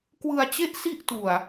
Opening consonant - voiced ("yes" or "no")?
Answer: no